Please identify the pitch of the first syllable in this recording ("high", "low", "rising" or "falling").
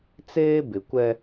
high